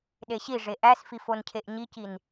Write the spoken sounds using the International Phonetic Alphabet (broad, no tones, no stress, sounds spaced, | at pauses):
ɗ e ɕ i ʐ e ʔ æ s f i f o n cʰ e ʔ ɲ i c i n